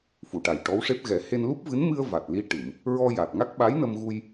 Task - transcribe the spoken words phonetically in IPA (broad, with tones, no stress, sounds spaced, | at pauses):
f u˨˩˨ ʈ a˨˩ j ʈ ɔ˧˥ w ʂ e˦˥ p̚ ɣ ɛ˨˩˦ h e˧ n l u˦˥ p̚ v ɨ˧˥ n m ɨ˧ ə̯ v a˨˩ t̚ l i˧ ʈ ɨ˨˩˨ m | ɹ ɔ˧ j a˨˩ t̚ ŋ a˦˥ k̚ ɓ a˧˥ j n ə˧ m ɣ u˧ j